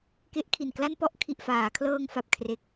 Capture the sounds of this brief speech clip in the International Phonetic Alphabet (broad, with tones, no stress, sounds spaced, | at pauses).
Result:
k e˦˥ ʔ kʰ i˨˩ n k l a˥˩ n p ɔ˥˩ ʔ kʰ i˨˩ ʔ f aː˩˦ kʰ l ɤː˧ ŋ f a˨˩ p̚ kʰ r e˨˩ k̚